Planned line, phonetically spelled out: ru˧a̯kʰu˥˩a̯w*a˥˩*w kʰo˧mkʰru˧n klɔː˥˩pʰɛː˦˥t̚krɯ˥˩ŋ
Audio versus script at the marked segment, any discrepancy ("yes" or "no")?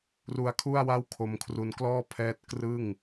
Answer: no